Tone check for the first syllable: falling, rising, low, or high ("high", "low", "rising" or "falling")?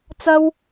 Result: high